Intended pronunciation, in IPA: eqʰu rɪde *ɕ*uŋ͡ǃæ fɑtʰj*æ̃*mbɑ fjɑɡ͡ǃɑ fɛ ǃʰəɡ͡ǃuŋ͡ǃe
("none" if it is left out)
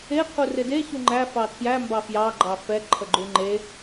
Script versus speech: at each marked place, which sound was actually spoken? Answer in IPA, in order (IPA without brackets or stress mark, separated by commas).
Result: ɕ, æ